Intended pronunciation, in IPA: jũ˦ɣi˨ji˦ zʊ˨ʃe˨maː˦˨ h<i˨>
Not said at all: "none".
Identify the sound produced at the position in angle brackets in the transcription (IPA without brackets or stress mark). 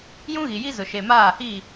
i˦˨